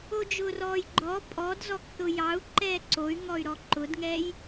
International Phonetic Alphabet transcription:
od͡ʒʊːrɔːjɡ͡ǃɔ pʼɔd zɔkθʊjɑu̯ǃɛː ǀoy̯ŋɔy̯ ɾɔǃʊdŋɛj

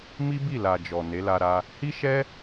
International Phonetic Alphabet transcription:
mi˦bi˦˨la˨ d͡ʒɔ˨ ne˨˦la˧ɾa˧ | hi˦ ʃɛ˦

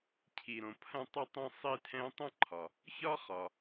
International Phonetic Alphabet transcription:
cʰi˩ɾõ˩ pʰɐ̃˥tˤɛ˥tˤɛ̃˥ sˤi˥tʰɛ̃˥ tˤɐ̃˥ǃʰɒ˩ | çɒ˥χɒ˩

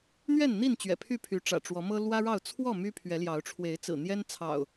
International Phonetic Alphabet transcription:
n̪ɥɛ˥˨nn̪i˥˨nt͡ɕɥɛ̰˨˩ pʰy˥˨pʰy˨˦ʈ͡ʂä̰˨˩ ʈ͡ʂwɔ˨˦mɤ˦ lwä˦ɻɑ˥˨ʊ̯ t͡sʰwɔ˥˨ my˦pʰɥɛ˨˦ljɑ˨˦ʊ̯ ʈ͡ʂʰwe˨˦ɪ̯t͡sɹ̩˨˩ n̪jɛ˦n t͡sʰɑ̰˨˩ʊ̯

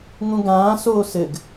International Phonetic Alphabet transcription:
ŋũɡãː soːsɘɡ

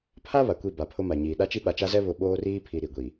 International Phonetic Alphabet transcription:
pʰa˦ βa˨kʷi˦˨ ba˨pʰʊ˦ma˨ɲiː˨ ɗa˦t͡ʃi˦ ɓa˨t͡ʃa˦zɛ˦ βʊ˦ ɓoː˦riː˦pʰi˨ ɾi˨ɡʷi˨

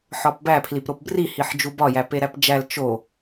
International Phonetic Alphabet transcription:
ħɒpbæ pʰlipɾopbri hiħd͡ʒubɒ jæpeɾæpd͡ʒæl t͡ʃo

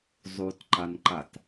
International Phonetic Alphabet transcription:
zˤutǃanǃat

